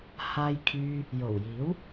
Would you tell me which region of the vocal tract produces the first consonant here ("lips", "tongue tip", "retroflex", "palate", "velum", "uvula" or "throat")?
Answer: throat